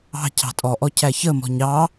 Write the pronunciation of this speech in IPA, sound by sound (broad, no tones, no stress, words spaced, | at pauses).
ɑ̤ cʰɑ̤tʼɔʔɔ cʰæçəmɔ̤ɲ ɑ